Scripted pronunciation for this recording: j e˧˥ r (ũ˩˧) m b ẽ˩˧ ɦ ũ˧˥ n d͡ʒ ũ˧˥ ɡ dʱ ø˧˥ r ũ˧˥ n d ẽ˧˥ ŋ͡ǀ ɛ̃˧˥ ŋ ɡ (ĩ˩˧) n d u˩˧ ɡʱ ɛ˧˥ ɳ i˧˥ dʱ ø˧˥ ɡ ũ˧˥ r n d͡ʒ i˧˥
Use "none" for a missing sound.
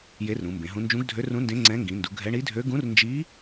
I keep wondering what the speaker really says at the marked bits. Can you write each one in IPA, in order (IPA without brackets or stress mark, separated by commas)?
ũ˩˧, ĩ˩˧